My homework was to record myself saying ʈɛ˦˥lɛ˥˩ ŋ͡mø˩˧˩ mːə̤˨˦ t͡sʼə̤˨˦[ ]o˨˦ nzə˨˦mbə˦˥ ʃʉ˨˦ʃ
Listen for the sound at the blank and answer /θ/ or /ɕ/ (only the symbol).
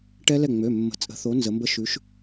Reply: θ